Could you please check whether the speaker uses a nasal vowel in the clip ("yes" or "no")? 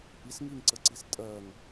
no